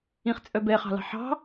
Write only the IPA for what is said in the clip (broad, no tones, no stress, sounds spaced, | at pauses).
ĩ χ t͡sʼ œ b ɛ χ ɑ̤ l ɑ̤ ħ ɑ̤